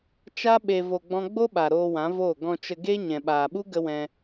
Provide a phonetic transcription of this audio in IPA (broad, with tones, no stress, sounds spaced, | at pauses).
t͡ʃ a˦ ɓ e˧ v o˧ ɡ͡b ɔ̃˦ ɡ͡b o˦ ɓ a˨ ɾ oː˧ w ã˨˦ v oː˦˨ ɡ ɔ̃˧ t͡ʃ ə˧ ɡ e˦ ɲ ɛ̃˨ ɓ aː˨ ɓ u˦ ɡ ə˦ w ɛ̃˧